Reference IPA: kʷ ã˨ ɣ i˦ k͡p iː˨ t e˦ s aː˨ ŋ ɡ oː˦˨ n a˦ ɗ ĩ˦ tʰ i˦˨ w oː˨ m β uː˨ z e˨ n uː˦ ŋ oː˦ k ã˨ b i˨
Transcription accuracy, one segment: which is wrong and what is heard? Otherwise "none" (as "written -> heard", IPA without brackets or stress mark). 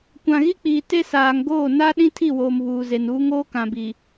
none